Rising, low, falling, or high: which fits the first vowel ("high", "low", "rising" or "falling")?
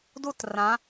falling